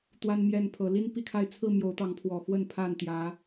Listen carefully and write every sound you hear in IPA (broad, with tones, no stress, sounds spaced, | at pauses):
t̪ w a˦ n m j ɛ˥˨ n pʰ ɤ˨˦ l i˦ n p i˦ kʰ a˥˨ ɪ̯ t͡sʰ ɹ̩˥˨ m j o˨˦ ʊ̯ t̪ ɑ˨˦ ŋ pʰ w ɔ˨˩ x w ə˥˨ n pʰ a˥˨ n t̪ j ä˨˦